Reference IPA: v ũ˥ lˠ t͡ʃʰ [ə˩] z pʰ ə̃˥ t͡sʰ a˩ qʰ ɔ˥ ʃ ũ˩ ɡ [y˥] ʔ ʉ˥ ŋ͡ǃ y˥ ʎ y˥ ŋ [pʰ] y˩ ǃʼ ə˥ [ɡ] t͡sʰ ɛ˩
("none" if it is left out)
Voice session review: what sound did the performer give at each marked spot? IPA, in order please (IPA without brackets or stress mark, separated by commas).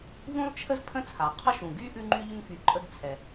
ə˥, y˥, f, ɡ